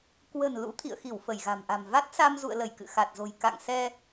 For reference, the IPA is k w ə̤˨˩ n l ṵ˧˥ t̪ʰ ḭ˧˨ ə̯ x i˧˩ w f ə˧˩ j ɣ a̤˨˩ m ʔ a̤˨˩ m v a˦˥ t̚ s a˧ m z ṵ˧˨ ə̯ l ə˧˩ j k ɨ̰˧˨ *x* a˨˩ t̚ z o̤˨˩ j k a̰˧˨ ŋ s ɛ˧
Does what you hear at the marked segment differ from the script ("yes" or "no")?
no